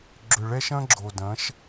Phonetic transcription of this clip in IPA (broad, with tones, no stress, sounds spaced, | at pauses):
ɡ͡ǁ ʏ˨ ɭ ɛ˦ ʃ ɐ̃˦ ɡ͡ǁ o˨ d ɐ̃˨˦ ʃ